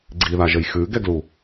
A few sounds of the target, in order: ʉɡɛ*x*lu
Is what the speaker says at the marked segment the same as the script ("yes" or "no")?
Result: no